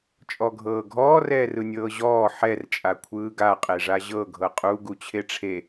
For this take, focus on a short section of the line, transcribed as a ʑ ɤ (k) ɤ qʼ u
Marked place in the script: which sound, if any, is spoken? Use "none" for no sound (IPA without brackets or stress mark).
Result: ɡʱ